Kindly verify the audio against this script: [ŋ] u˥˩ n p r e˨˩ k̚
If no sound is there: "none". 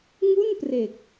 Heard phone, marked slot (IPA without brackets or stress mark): ŋ